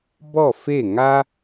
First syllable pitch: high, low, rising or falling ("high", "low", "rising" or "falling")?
falling